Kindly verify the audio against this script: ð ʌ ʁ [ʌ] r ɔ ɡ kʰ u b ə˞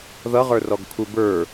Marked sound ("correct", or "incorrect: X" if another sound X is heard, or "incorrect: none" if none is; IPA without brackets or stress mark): incorrect: ə˞